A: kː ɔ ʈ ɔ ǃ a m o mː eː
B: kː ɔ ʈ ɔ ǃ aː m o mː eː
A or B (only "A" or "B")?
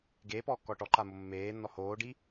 A